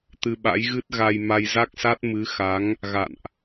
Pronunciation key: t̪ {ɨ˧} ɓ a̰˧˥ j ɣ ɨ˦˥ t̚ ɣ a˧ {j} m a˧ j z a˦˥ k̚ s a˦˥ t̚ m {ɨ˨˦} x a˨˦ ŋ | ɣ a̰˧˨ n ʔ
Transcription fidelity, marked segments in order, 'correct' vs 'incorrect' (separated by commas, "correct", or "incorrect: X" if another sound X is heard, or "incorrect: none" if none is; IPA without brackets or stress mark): correct, correct, correct